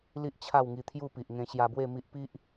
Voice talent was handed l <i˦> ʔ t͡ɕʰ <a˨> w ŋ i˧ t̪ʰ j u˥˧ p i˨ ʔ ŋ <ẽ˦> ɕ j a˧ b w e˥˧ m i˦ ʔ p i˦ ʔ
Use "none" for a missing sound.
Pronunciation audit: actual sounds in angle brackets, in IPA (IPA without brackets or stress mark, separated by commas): i˦, a˥˧, ẽ˧